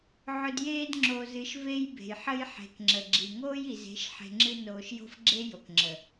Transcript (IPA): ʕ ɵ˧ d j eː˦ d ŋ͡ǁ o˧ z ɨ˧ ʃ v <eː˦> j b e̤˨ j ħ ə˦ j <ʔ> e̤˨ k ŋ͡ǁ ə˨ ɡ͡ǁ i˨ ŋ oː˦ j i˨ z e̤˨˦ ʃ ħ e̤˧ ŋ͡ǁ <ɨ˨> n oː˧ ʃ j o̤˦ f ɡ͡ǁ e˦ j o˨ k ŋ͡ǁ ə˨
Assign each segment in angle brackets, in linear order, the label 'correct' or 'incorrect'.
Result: incorrect, incorrect, incorrect

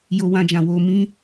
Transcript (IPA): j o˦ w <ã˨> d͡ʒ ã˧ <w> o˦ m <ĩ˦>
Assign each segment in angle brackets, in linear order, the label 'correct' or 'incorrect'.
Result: incorrect, correct, correct

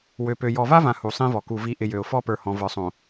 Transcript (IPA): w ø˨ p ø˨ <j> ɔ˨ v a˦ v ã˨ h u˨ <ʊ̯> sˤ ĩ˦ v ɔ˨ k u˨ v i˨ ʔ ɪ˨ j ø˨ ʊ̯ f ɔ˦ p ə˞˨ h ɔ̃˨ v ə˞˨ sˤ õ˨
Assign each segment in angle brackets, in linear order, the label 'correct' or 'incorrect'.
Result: correct, incorrect

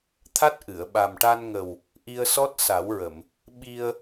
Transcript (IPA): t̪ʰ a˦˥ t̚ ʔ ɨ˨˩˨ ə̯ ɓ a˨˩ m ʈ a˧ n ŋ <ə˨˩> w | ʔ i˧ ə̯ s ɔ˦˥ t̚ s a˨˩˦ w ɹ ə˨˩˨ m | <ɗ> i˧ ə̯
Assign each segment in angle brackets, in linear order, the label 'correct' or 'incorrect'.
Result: correct, incorrect

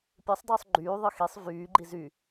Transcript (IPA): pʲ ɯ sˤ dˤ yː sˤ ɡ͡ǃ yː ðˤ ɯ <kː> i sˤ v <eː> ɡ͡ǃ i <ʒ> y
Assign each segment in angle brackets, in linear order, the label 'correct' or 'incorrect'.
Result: incorrect, incorrect, incorrect

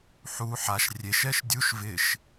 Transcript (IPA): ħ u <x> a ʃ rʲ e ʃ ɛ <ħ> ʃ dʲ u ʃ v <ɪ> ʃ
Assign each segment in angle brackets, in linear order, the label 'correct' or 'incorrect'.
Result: incorrect, incorrect, correct

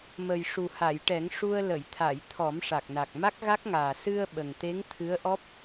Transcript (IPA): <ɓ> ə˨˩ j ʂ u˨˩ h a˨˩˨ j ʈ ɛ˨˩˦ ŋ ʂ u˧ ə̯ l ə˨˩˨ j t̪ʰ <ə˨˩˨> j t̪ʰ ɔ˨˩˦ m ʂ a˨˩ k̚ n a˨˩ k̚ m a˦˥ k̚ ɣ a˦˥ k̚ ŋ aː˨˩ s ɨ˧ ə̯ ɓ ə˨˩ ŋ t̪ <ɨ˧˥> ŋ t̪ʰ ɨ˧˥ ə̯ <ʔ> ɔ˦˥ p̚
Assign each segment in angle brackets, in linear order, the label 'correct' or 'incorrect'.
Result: incorrect, incorrect, incorrect, correct

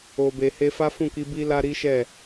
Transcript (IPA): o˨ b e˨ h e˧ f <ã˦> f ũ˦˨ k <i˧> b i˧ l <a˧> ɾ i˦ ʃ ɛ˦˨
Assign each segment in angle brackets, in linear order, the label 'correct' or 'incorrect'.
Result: incorrect, correct, correct

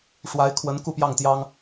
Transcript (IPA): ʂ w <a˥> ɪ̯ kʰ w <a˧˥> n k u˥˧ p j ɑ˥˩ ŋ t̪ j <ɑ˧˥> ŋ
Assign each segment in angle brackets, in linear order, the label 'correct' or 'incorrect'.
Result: incorrect, incorrect, incorrect

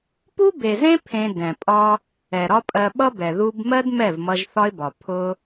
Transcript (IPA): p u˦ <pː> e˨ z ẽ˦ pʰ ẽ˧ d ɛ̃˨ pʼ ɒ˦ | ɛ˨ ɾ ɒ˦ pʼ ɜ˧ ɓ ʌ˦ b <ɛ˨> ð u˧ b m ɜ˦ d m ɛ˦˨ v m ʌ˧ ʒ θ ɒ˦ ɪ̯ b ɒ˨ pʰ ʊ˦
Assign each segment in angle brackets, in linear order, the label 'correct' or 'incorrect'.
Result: incorrect, correct

